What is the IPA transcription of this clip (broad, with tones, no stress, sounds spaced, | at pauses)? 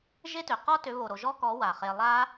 ʒ e˦ t ø˨ q ɔ˦ t ø˨˦ β o˨ ɾ o˨ ʒ ɔ˦ k ɔ˨˦ w a˨ χ e˧ lˠ a˦